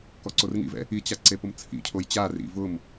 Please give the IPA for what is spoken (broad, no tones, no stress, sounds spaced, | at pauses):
k ɔ ǀ o r ŋ ḭ v ɛ̰ | i t͡ɕ a ǀ e p ʊ m t͡sʰ ḭ cʰ o j t͡ɕ a r ḭ v ʊ m